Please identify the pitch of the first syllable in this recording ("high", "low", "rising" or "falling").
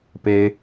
high